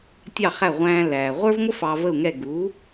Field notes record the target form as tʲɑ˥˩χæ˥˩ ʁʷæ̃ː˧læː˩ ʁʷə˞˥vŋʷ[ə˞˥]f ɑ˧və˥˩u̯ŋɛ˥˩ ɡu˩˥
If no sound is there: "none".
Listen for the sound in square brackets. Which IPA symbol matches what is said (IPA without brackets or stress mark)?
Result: ə˥